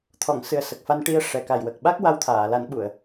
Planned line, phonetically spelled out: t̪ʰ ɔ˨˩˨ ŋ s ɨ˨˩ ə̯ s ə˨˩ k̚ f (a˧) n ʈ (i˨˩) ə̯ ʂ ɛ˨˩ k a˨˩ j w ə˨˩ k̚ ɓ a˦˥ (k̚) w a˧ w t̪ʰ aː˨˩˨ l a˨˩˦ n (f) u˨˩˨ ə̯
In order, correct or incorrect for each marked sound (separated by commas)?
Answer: correct, incorrect, correct, incorrect